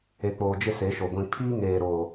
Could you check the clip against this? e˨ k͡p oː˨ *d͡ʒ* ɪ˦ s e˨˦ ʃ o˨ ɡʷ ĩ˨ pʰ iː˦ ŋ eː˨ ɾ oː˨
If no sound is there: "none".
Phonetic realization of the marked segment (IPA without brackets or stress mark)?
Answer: d͡ʒ